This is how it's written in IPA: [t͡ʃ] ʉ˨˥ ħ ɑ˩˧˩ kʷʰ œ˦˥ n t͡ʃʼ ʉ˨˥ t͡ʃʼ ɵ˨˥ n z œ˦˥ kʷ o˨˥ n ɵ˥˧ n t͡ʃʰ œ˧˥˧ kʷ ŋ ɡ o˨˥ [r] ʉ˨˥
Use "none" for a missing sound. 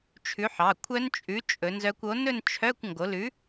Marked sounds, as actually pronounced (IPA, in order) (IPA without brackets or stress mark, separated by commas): t͡ʃʰ, l